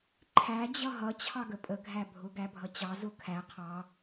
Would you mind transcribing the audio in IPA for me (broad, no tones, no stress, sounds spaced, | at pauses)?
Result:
ǃʰ æ d͡ʑ ʌ ɦ ʌ t͡ɕʰ ɑ ɡ ə pʼ ə ɡʱ æ bʱ ʊ ɡ æ bʱ ʌ t͡ɕ ɑ z ʊ kʰ æ qʰ ɑ